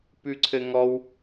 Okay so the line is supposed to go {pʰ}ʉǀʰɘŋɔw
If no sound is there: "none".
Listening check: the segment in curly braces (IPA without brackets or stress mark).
p